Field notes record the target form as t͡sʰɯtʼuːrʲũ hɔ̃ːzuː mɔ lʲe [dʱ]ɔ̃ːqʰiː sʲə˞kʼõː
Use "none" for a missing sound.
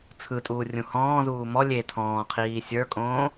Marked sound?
tʰ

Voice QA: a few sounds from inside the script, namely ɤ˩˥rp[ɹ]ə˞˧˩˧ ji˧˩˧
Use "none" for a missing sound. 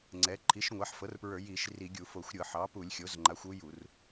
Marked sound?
ɹ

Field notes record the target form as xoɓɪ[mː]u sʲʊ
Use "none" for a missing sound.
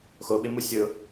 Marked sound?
m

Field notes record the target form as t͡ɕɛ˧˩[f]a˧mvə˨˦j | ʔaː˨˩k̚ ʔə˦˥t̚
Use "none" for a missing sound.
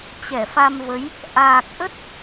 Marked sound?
f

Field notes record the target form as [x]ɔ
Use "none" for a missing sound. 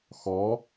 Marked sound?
x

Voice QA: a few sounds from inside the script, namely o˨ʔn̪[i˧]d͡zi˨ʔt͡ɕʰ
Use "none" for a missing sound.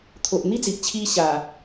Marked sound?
i˦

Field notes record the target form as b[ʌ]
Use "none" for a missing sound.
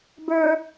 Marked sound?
ə˞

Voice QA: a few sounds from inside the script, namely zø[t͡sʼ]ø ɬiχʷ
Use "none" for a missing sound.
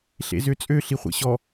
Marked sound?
t͡sʼ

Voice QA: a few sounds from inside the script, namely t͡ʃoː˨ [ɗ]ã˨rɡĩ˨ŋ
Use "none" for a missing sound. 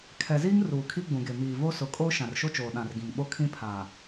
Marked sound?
ɗ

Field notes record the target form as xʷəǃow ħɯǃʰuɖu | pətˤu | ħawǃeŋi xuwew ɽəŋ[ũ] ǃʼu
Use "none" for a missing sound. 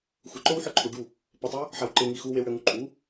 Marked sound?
u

